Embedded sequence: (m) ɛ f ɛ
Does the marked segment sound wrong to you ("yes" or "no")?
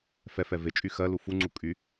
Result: yes